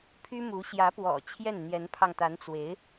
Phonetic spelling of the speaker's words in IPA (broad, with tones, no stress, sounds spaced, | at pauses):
pʰ y˥ m u˧˥ ɕ j ä˧˥ p w ɔ̰˨˩ t͡ɕʰ j ɛ˥˩ n n̪ j ɛ˧˥ n pʰ ɑ˧ ŋ t̪ a˧˥ n t͡s w e˧˥ ɪ̯